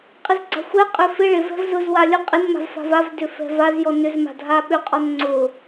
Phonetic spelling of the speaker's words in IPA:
qʼ ɪ z ɡ͡ǀ a̤ xʷ ɛ qʼ ʏ f ɪ ɭ ɪ v ɛ̤ v z ʊ z w a lʲ ʊ qʼ ɪ n m a̤ v f a̤ v a v d ʏ f ɛ̤ v a z j ɔ n ʏ z m a̤ dʱ a ɓ ʏ qʼ ɔ n ŋ͡ǀ ʊ

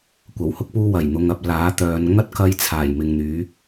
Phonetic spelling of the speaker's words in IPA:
kʷ ɐ˨˩ w h ʊ˥ k̚ p uː˧ w ɐ˨˩ j n̪ ʊ˨ ŋ ɐ˨ p̚ l aː˨˥ t̪ œː˨˧ n ŋ ɐ˥ t̚ k ɐ˧ j t͡sʰ aː˨˩ j m ɪ˨ ŋ n̪ yː˨˥

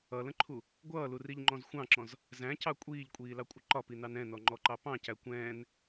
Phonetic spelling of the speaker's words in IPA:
ʌ l ə̃ ǃʰ u | ɡʷ ʌː l u r i ʎ ŋ͡ǃ ɔ̃ z xʷ ɑ̃ ǁ ɔ̃ z | z æ̃ c ɑ kʷʼ iː ʎ kʷʼ iː l ɑ kʷʼ ɪ ǃ ɒ p i n ɑ n ɛ̃ n ɔ ŋ͡ǃ ɔ ǃ ɑ p ɑ̃ c æ kʷ ɛ̃ː n

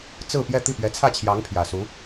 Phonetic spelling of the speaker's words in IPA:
t͡s ɹ̩˥˧ p j ɛ˥˧ t̪ i˥˩ p ɥ ɛ˧˥ t͡sʰ ä˥˩ t͡ɕʰ j ɑ˧˥ ŋ pʰ j ä˨˩ s u˧˥

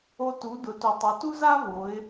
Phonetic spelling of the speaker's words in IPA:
o˧ t u˩˧ d ʊ˩˧ t u˩ tˤ ʊ˩˧ t u˥ z a˥ v o˩˧ ɪ̯

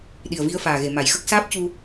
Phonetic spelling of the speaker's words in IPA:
ɗ i˨˩ ə̯ v i˧ ə̯ f aː˨˩ ɣ e˨˩˨ m a˨˩ j x ə˦˥ k̚ s aː˦˥ p̚ c u˧

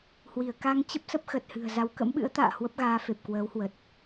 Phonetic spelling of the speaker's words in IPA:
h w i˧˩ ə̯ k a˧ ŋ t͡ɕ ə˦˥ p̚ s ə˦˥ p̚ x ə˨˩ t̚ h ɨ̤˨˩ ə̯ z a˨˦ w k ə̰˧˥ m ɓ ɨ̰˧˥ ə̯ t̪ a̰ː˧˨ h w ə˦˥ p̚ ɣ aː˨˦ f e˨˩ p̚ k w əː˨˦ w h w ə˨˩ t̚

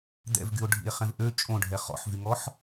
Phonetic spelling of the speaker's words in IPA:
d̪ ɛ̰ v ɡ y o̯ ɖʱ ḭ e̯ χ ɛ̃ v ʔ ø t͡ʃʼ õ ɖʱ ɛ χ ɔ̰ ħ v y ŋ ɔ ħ

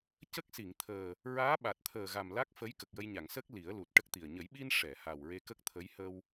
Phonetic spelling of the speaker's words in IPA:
c ə˦˥ k̚ s i˨˩˨ ŋ t̪ʰ əː˨˩ | ɹ aː˧˥ ɓ a˨˩ t̚ t̪ʰ əː˨˩ ɣ a˨˩ m l a˦˥ k̚ f ə˧˥ j k ə˨˩ k̚ j ə˧ j ɲ a˨˩˨ ŋ s ə˦˥ k̚ l i˨˩˦ ə̯ l u˨˩ t̚ ʈ ə˦˥ k̚ t̪ i˨˩ ə̯ ɲ ə˨˩˦ j ɓ i˧ n ʂ ɛ˨˩˨ h a˨˩ w ɹ e˧ k ə˦˥ k̚ t̪ʰ ə˧˥ j h ə˧ w

